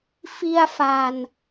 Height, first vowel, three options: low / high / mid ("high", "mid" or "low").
high